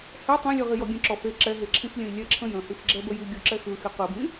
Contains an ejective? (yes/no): no